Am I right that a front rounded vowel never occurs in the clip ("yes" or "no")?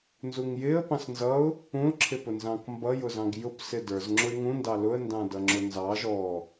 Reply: yes